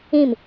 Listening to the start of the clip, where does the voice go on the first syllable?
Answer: falling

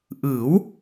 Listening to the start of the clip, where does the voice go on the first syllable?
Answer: rising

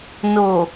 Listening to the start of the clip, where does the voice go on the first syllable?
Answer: low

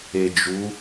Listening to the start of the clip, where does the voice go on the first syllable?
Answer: low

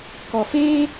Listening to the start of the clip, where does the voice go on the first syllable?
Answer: low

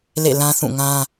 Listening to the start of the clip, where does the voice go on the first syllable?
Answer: falling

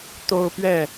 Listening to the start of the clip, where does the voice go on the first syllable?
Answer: high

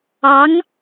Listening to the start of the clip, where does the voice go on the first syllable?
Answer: rising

